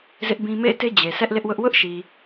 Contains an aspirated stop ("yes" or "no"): no